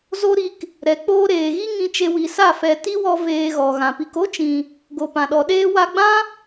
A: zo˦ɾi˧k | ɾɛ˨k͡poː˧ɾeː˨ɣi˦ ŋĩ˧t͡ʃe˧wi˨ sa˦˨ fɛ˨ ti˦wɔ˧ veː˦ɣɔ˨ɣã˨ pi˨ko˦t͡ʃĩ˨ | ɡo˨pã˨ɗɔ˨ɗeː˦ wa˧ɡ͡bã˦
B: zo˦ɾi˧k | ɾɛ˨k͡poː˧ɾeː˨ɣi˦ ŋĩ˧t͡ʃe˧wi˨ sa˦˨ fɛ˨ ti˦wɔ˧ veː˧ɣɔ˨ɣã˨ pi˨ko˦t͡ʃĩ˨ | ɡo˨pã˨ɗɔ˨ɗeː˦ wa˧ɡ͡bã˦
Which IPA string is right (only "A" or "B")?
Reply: B